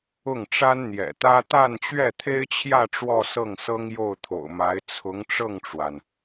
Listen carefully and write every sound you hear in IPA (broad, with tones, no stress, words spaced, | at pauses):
ʊ˥˩ŋ ʈ͡ʂa˥nn̪jɛ̰˨˩t̪ä˥ t̪a˥˧nt͡ɕɥɛ˥˩t̪ʰe˥ɪ̯t͡ɕʰjä˥˧ ʈ͡ʂwɔ˥˧sɤ˥˩ŋsɤ˥ŋ jo˥˩ʊ̯t̪ʰo̰˨˩ʊ̯ma˧˥ɪ̯ t͡sʰʊ˧˥ŋ ʈ͡ʂɤ˥˩ŋʈ͡ʂwa˩n